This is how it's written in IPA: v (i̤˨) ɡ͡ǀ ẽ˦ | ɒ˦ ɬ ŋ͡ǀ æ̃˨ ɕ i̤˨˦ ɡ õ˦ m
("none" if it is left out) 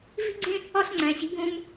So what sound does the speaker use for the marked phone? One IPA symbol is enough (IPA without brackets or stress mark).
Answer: i̤˦